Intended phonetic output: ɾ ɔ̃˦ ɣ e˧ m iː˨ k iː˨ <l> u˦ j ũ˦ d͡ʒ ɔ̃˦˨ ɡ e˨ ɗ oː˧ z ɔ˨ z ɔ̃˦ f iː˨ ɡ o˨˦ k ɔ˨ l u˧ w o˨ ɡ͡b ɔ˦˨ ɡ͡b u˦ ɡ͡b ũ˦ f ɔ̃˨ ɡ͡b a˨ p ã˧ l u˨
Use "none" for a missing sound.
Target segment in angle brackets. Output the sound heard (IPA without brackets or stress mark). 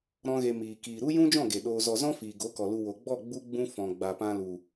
ɾ